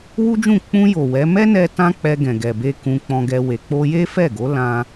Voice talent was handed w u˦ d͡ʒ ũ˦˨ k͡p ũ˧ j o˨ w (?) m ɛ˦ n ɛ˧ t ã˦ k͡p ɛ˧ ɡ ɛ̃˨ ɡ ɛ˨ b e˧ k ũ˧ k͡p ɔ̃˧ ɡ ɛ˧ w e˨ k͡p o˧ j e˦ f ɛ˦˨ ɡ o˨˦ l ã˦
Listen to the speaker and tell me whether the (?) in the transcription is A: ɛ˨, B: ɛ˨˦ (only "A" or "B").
B